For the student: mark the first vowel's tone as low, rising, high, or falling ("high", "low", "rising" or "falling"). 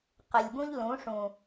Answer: low